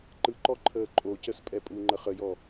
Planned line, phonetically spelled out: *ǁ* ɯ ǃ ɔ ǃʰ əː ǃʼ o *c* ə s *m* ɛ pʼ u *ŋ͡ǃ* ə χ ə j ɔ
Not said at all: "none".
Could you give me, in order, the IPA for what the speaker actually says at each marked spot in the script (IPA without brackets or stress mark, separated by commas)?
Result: ǃ, c, pʼ, ŋ͡ǃ